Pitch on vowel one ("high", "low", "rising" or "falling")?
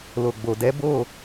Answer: low